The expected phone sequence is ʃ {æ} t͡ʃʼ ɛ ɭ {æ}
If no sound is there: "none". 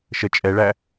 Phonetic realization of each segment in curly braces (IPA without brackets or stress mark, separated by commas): ə, æ